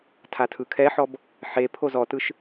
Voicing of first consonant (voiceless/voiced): voiceless